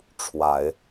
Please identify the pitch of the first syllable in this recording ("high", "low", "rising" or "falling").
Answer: low